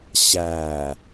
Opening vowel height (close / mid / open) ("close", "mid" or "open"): open